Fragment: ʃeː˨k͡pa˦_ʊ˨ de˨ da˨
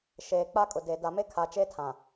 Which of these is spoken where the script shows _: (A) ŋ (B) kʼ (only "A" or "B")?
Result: B